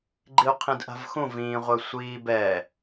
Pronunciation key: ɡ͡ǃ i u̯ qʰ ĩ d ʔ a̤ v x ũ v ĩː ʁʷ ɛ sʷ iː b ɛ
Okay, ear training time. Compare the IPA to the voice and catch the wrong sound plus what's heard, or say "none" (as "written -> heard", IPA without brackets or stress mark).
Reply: none